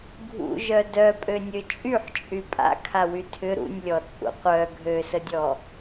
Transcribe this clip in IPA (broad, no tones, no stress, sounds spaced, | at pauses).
ɡʱ ṵ ʒ œ d œ pʼ ø nʲ ø t͡ʃʼ y ħ t͡ʃʼ y pʼ a̰ kʰ a w y tʰ ʏ ɾ ṵ nʲ lʲ ɔ t͡sʼ ṵ qʷ œ ɡʱ ø s ə dʲ ɔ